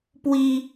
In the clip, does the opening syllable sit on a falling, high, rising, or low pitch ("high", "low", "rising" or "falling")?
high